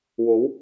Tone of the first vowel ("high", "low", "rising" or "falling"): rising